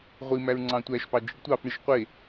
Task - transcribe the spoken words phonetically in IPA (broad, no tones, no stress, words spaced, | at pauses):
ʁʷi mæɹŋ͡ǀɑ̃tʷæʃpɑ d͡ʒiɖtʷɑfɳiʃ qʷe